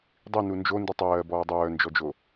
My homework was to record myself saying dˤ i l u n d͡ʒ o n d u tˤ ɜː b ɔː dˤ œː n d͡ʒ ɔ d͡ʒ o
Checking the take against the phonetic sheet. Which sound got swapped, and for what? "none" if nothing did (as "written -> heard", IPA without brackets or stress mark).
l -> n